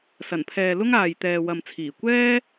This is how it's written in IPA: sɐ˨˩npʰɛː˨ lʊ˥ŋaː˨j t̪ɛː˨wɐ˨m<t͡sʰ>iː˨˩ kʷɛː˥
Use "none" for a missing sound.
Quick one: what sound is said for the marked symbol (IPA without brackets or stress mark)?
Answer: t͡sʰ